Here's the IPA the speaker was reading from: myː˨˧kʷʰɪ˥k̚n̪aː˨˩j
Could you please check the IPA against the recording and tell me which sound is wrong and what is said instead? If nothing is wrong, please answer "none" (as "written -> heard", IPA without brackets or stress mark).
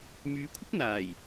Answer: none